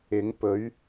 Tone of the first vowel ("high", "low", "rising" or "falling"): rising